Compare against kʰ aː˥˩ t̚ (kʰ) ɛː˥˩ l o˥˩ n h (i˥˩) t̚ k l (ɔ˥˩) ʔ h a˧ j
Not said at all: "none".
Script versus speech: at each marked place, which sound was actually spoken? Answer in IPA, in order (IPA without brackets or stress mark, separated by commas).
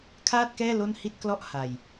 k, i˥˩, ɔ˥˩